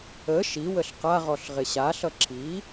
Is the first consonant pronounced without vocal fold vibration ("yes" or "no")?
yes